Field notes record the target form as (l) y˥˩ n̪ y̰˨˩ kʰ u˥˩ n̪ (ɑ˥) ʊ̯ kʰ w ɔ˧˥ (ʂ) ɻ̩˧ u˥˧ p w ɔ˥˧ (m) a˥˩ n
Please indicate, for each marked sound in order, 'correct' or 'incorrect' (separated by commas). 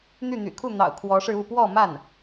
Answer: incorrect, incorrect, correct, correct